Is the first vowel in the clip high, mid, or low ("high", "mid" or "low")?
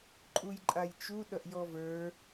high